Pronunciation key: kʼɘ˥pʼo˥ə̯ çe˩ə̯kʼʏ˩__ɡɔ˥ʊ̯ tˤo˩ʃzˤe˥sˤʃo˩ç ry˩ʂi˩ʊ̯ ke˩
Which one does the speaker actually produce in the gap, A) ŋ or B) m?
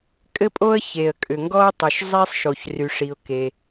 A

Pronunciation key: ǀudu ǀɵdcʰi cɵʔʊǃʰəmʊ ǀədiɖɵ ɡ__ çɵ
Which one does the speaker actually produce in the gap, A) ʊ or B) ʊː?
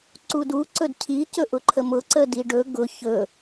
A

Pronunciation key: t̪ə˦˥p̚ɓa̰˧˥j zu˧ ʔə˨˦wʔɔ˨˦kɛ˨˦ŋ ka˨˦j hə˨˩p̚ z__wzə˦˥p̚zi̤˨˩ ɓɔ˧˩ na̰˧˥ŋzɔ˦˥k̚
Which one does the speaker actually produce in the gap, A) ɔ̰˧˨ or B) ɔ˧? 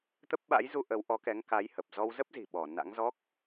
B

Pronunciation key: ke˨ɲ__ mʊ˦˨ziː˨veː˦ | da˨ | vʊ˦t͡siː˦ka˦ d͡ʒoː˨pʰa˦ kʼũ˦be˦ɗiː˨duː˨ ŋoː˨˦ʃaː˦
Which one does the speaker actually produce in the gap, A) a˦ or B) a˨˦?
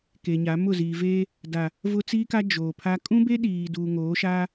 B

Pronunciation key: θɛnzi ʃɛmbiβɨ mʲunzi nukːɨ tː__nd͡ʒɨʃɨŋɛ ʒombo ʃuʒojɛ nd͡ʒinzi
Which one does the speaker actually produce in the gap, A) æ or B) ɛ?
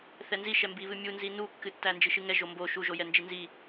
A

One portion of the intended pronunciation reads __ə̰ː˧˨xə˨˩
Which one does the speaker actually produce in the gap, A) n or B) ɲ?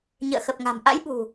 B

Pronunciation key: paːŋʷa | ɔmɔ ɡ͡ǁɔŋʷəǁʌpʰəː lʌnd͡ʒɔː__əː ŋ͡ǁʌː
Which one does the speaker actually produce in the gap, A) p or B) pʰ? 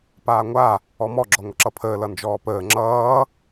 A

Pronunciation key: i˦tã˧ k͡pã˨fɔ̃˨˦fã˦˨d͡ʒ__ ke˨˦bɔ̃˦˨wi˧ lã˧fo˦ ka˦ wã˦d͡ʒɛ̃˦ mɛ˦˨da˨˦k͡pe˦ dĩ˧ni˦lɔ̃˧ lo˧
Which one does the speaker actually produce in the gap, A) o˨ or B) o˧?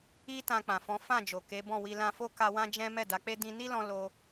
A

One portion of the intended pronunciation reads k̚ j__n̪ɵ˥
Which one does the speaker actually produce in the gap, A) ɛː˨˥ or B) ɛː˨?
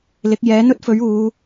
A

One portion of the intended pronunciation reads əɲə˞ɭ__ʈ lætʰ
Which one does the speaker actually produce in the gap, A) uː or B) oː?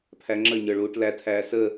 A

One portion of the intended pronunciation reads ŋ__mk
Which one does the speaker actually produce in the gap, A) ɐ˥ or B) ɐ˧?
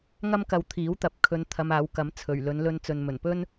A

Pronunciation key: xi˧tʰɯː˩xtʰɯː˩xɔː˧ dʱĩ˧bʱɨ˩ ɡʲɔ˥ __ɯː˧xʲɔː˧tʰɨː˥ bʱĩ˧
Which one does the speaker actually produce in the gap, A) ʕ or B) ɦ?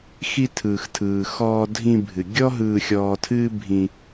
B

